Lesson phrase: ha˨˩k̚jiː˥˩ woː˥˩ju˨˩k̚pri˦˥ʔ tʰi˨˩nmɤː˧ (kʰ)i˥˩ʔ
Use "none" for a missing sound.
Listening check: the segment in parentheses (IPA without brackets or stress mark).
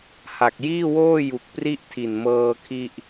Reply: kʰ